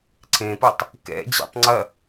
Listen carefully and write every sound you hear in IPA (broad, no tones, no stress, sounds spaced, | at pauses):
ǀʰ ẽ p ɤ tˤ | k ɛ̰ d͡ʑ ɛ̰ tˤ ŋ͡ǀ ɐ